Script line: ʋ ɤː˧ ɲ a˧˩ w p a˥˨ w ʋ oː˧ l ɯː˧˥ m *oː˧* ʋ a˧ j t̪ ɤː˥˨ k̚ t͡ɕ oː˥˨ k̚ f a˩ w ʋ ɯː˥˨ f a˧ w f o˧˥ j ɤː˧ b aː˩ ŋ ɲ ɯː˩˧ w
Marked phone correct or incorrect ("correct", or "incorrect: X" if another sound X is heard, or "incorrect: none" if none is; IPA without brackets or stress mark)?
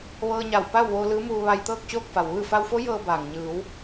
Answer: incorrect: uː˧